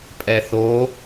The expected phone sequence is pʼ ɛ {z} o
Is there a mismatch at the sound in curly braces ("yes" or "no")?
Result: yes